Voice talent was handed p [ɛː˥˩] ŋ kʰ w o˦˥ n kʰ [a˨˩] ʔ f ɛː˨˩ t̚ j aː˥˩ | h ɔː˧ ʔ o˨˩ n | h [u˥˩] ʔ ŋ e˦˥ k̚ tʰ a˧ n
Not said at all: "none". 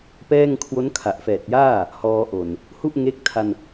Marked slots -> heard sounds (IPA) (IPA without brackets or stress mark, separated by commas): ɛː˥˩, a˨˩, u˥˩